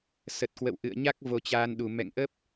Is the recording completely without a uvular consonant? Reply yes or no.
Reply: yes